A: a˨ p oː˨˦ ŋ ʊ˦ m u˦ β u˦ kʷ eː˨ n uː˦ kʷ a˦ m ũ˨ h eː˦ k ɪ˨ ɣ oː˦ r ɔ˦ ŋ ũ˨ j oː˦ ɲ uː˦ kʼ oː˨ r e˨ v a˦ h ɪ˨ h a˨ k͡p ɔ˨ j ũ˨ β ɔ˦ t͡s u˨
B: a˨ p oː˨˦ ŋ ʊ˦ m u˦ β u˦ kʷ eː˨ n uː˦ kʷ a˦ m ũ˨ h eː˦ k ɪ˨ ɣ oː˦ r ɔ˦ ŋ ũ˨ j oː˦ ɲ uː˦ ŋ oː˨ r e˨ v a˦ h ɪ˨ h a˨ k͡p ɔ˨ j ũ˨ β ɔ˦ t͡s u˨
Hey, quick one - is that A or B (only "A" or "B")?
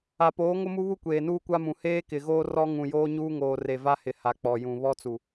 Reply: B